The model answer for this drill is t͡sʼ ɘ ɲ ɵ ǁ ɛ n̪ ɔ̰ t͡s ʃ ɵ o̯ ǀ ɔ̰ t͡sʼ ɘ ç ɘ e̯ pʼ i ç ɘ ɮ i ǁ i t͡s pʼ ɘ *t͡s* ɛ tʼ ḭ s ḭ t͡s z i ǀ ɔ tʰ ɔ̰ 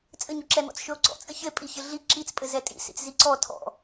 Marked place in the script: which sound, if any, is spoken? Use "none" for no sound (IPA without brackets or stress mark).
z